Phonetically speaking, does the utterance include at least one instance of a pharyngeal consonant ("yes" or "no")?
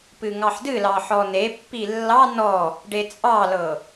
yes